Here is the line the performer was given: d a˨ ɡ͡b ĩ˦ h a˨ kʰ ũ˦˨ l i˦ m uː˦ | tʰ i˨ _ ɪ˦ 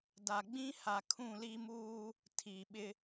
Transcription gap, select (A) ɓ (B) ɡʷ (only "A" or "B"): A